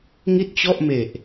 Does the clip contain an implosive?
no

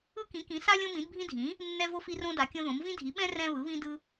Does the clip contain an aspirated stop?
no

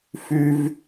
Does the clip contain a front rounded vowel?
yes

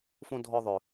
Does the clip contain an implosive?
no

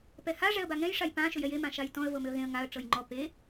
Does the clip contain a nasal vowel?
yes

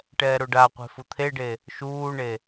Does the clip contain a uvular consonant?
yes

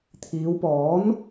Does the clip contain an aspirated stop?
yes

